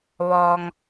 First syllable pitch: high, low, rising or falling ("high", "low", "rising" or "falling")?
low